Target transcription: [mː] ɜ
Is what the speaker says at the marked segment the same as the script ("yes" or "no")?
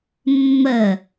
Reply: yes